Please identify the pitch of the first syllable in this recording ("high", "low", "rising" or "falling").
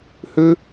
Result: high